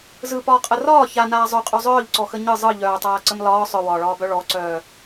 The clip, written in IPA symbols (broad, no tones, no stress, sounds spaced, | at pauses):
z ɯ p ɒː qʼ ə r ɒː ç a n aː zˤ œ qʼ œ zˤ œː ʎ ǀ ɔ x ə ɲ ɯ zˤ ɯ ʎ œː tˤ aː ǀ ə m l ɒː sˤ œ w ɒː ɭ ɒː b œ ɭ ɔ ǀ œː